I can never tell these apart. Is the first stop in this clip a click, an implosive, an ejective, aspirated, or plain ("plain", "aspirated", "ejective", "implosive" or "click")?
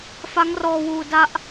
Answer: plain